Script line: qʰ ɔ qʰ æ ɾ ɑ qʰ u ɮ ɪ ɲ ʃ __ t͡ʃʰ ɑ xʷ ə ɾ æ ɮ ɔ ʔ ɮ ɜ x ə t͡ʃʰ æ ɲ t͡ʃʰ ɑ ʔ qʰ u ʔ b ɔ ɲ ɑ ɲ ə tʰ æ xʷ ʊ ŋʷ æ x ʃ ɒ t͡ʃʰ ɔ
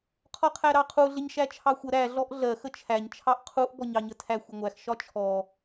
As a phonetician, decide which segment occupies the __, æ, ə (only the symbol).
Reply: æ